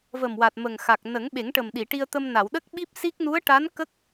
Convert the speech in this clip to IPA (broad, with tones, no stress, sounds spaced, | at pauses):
v ə˨˩ m w a˨˩ t̚ m ə˨˩ ŋ x a˨˩ k̚ n ə˨˩˦ ŋ ɓ e˨˩˦ ŋ ʈ ə˨˩ m ɗ i˨˩˨ ʈ i˧ ə̯ t̪ ə˧ m n a˨˩˨ w ɗ ə˦˥ k̚ ɓ i˦˥ p̚ s i˦˥ k̚ n u˧˥ ə̯ ʈ a˧˥ n k ə˦˥ k̚